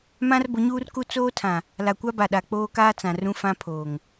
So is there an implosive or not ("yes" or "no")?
yes